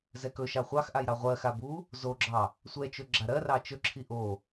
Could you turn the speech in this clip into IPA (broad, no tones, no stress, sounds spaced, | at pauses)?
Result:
z ɛ k ɵ ʃ ɑ χʷ ɑ x ʔ a j ɾ ɑ ʁʷ ɜ x a b u | z o ɡ͡ǁ ɑ | sʷ ɛ t͡ʃ ɵ ɡ͡ǁ a ɾ ɜ r ɑ t͡ʃ ɵ ǁʰ i ʔ o